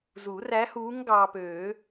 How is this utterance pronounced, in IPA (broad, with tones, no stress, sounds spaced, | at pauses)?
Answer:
z u˨˩˦ r æ˧˥ h uː˧˥ ŋ ɡ ɑː˧ p øː˨˩˦